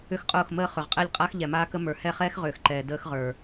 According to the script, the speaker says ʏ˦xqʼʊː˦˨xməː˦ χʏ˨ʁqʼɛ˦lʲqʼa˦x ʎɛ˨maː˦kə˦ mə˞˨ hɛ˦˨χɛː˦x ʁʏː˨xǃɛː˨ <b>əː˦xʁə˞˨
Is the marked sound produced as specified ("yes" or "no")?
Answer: no